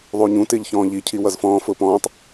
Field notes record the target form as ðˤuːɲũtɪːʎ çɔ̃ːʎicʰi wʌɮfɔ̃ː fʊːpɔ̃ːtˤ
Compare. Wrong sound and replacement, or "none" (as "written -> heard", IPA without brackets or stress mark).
ɮ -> z